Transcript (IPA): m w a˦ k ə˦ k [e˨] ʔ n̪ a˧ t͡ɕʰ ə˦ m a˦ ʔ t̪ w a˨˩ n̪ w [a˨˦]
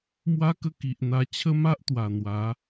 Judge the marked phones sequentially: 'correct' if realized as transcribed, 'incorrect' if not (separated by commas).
incorrect, correct